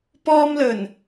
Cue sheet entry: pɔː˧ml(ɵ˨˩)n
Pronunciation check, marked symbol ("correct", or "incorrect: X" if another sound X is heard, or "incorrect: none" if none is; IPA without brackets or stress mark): correct